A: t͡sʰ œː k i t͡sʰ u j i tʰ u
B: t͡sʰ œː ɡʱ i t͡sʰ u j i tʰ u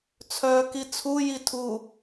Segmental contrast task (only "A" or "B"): A